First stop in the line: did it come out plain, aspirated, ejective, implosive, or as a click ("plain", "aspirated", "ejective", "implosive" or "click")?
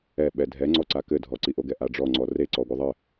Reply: implosive